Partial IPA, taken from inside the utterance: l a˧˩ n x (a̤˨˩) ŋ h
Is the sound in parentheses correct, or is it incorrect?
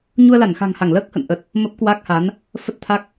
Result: correct